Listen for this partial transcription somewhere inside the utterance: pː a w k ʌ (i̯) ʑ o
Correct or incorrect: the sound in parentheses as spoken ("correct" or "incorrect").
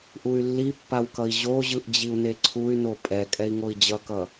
correct